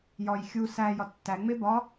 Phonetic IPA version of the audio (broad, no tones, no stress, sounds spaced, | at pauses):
j ɒ j xʲ u s æ j ɒ tː æ ŋ͡m e b ɒ